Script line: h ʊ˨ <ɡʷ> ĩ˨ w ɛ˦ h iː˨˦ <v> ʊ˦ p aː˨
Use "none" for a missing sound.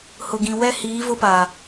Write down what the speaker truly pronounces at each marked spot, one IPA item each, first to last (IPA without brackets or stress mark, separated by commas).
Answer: ɡ, v